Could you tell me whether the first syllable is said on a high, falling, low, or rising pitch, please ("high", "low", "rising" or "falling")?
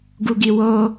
low